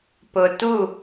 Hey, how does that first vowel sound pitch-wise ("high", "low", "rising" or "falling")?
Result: low